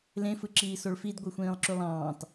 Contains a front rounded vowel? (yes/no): yes